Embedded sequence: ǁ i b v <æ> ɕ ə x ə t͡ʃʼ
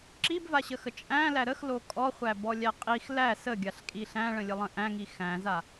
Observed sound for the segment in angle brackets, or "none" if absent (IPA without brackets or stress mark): a